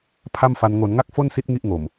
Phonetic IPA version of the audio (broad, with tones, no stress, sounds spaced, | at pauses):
pʰ a˥˩ m f a˧ n ŋ o˩˦ n ŋ a˥˩ k̚ f o˥˩ n s i˦˥ t̚ ŋ i˥˩ ʔ ŋ o˨˩ m